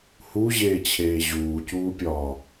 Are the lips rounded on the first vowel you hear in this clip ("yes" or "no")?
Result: yes